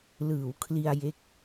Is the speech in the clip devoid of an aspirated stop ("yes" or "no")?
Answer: no